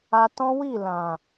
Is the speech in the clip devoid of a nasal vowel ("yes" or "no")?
no